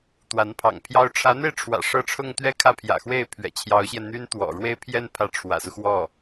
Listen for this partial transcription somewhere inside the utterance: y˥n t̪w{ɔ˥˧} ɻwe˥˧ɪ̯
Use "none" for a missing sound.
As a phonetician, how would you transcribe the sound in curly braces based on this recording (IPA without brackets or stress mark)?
ɔ̰˨˩